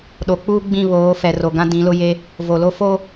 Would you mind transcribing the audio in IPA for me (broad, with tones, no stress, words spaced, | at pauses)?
ɗo˨k͡puː˦ ɡ͡bĩ˦˨βoː˨˦ fɛ˨ro˨ ɡã˦dĩ˨˦lʊ˦je˦ | vo˨lo˦ fo˦